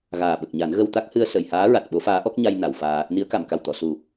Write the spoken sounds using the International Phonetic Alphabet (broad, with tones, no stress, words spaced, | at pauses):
ɣaː˨˩ɓə˨˩k̚ɲa˨˩˦n ɣə˧wt̪a˦˥k̚ hɨ˧ə̯sə˨˩˨jhaː˧˥ɹa˨˩t̚ ɓo˧˥faː˧˥ʔɔ˦˥k̚ɲa˧j na˨˩˨wfaː˧ | ni˧˥ə̯ka˨˩˨mka˨˩wt̪ɔ˨˩˨ su˨˩